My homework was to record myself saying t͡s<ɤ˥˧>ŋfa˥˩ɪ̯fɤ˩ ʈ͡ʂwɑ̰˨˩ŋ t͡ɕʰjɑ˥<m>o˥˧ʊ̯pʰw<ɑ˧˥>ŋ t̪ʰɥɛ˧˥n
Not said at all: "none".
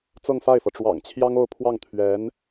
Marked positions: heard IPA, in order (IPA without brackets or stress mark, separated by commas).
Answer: ɤ˥˧, ŋ, ɑ˥˩